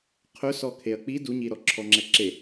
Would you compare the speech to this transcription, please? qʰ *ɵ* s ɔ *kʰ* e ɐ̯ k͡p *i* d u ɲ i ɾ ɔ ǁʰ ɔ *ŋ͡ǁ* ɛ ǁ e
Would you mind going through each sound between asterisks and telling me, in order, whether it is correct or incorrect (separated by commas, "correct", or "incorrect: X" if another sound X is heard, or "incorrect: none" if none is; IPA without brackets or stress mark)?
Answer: correct, correct, correct, correct